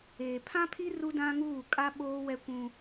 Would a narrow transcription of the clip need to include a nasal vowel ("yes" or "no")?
yes